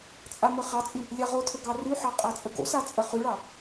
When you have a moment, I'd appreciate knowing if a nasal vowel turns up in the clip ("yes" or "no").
no